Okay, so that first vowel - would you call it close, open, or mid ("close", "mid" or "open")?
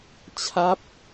open